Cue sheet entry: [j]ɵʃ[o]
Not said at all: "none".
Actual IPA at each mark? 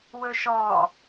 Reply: w, ɔ

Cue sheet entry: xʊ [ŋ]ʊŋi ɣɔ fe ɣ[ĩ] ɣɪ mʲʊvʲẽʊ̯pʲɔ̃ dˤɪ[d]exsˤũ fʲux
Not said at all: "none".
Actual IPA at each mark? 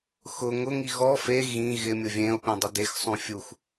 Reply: ŋ, ĩ, d

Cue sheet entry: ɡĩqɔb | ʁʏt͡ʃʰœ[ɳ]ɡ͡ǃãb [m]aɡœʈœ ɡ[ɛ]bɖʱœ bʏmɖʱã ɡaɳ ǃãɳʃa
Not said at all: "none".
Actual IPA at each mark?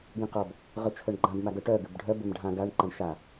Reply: ɳ, m, ʏ

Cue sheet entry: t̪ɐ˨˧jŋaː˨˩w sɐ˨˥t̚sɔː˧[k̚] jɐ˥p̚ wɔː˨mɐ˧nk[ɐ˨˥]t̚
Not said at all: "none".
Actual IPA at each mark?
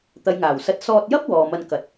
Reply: t̚, ɐ˨˥

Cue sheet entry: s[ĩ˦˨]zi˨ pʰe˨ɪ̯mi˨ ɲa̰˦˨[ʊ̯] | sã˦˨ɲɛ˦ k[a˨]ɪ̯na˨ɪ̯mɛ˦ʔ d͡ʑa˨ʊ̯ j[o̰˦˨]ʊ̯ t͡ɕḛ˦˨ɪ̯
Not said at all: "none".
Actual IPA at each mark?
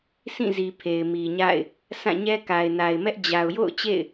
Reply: ĩ˦˨, ɪ̯, a˨, o̰˦˨

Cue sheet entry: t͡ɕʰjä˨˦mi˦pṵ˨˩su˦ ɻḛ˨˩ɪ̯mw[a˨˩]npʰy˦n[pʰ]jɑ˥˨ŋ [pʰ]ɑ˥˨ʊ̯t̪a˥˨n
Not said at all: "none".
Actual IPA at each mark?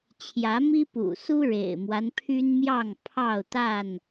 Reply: a˦, m, pʰ

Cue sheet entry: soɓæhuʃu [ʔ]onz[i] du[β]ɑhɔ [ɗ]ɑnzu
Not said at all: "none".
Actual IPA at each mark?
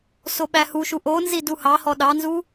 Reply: ʔ, i, h, ɗ

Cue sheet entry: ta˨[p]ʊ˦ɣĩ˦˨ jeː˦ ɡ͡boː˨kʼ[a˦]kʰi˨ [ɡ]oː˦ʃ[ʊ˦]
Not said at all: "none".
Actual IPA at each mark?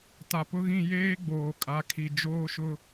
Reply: p, a˨, d͡ʒ, ʊ˦

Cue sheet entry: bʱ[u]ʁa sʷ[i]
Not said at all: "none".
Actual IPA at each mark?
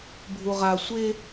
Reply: u, e

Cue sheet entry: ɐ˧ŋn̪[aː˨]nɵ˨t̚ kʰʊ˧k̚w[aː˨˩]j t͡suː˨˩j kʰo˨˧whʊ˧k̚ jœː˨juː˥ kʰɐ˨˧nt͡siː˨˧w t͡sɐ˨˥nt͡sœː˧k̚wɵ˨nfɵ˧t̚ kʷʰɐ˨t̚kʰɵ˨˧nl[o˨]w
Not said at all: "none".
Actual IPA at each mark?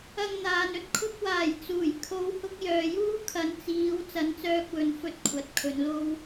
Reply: aː˨, aː˨˩, o˥

